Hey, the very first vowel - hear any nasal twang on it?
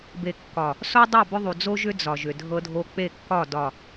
no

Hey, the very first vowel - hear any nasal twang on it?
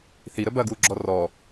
no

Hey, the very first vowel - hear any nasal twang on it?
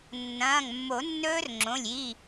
yes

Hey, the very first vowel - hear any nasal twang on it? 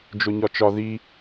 no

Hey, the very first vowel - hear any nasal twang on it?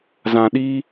yes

